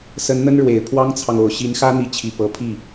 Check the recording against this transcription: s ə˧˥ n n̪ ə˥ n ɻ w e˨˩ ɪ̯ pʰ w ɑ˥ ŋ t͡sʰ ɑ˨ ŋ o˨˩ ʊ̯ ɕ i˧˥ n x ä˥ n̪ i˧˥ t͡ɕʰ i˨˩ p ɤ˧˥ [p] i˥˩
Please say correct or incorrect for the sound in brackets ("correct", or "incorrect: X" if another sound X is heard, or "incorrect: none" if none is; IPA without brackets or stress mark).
incorrect: pʰ